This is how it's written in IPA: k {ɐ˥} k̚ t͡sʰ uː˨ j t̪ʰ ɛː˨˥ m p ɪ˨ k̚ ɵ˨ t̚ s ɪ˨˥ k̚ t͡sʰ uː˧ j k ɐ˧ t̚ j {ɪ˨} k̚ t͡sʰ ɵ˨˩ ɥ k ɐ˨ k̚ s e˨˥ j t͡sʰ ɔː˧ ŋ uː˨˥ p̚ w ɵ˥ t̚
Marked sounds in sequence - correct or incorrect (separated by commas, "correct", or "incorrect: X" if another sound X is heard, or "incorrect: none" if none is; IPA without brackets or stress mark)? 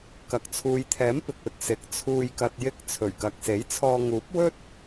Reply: incorrect: ɐ˨, incorrect: ɪ˧